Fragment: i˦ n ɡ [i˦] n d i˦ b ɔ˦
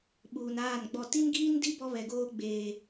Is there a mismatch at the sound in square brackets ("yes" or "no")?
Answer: yes